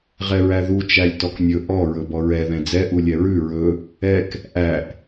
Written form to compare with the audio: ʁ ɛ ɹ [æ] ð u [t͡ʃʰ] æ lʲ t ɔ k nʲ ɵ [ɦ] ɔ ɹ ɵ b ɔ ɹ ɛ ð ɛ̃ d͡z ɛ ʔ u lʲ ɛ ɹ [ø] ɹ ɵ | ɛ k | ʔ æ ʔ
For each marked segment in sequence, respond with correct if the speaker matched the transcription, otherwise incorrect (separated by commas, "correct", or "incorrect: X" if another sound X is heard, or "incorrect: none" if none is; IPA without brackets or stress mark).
correct, incorrect: t͡ʃ, incorrect: ʔ, incorrect: ʉ